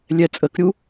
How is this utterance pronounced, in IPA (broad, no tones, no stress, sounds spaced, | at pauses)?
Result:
lʲ ɛ t͡sʼ ə k ɾʲ u